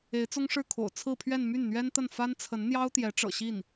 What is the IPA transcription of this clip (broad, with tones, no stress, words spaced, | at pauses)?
e˧˥ɪ̯t͡sʊ˥ŋʂɻ̩˥˩kʰo̰˨˩ʊ̯ t͡sʰɹ̩˥˧pʰɥɛ˥˧n my˥˩nn̪ɥɛ˥nt̪ə˥˩n fa˥nt͡sʰə˧˥n n̪jɑ˥ʊ̯t̪jɛ˧˥ʈ͡ʂɤ̰˨˩ ɕi˥˩n